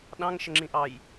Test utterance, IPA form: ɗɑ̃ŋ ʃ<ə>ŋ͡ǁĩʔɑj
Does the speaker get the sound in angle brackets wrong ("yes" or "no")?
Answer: no